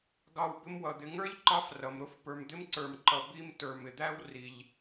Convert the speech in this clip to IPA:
ɡɑ˨w bɪ˦mwʌ˩ d̪ɪ˨ŋə˞˥ʎǃɑ˦f rʌ˩mɾʊ˦f pə˞˨md̪ɪ˦mǀə˞˨mǃʌ˨ bi˦m tə˞˨mɪ˩d̪æ˥w ri˨ʎ

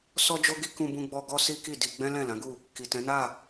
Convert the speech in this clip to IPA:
sɔ˦d͡ʒo˦ɡi˦ kũ˧bũ˧ɡ͡bɔ˧ ɡɔ˦si˦ ki˦˨di˧ ɡ͡bɛ̃˦lɛ̃˦˨ lã˨˦ɡu˦˨ | ki˨tɛ̃˨˦na˦˨

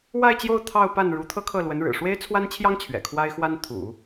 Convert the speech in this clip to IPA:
wa˥˧ɪ̯t͡ɕjo˥˧ʊ̯ t̪ʰɑ˥˧ʊ̯pa˥˩nɻu˧˥ t̪ʰɤ˥kʰɤ˥˩lwə˧˥nɻɻ̩˨˩ ʂwe˥ɪ̯t͡sʰwa˥nt͡ɕʰjɑ˥ŋ t͡ɕʰɥɛ̰˨˩kʰwa˥ɪ̯ xwa˥nt̪ʰṵ˨˩˦

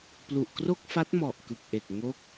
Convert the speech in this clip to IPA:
plu˨˩ʔkro˥˩k̚fa˦˥t̚ mɔ˨˩ʔ kɯ˨˩k̚ʔe˨˩k̚ ŋo˦˥k̚

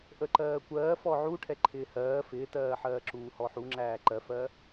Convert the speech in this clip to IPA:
ʔəǃɜːkʷɜː fɔʕuʈʰɛ ǃʰɪːhɜː fɪːtɜːħɜːǁuː hɔħuŋ͡ǁæː ǃɜfɜ

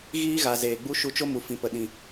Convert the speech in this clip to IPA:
ɣiː˦ɣa˨ zeː˨ɡ͡bu˦ ʃu˧t͡ʃo˦mu˨ fĩ˨pə˨ɗĩ˨

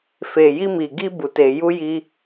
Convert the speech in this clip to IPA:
fe˨ji˧mi˨ɡi˧ bu˨te˨ ju˧ji˧

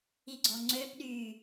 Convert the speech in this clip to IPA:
iɡ͡ǀɔŋ͡ǀøpɗyː

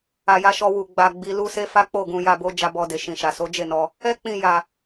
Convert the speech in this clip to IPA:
a˨ ja˨˦ʃɔ˧ wu˨ ɡ͡ba˨ɡ͡bi˨ lu˧se˧ fa˦k͡po˦˨ ɡũ˧ja˧bo˦ d͡ʒa˧bɔ˧de˨ ʃĩ˨ʃa˨so˨˦d͡ʒe˦˨ nɔ˧ | ɛ˦k͡pĩ˧ ja˧

